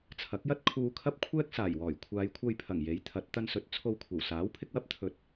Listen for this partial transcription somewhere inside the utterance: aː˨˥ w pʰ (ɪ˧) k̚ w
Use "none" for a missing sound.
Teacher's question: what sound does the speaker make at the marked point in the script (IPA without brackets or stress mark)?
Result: ɪ˧